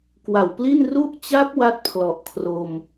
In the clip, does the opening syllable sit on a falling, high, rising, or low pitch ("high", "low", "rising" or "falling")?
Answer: low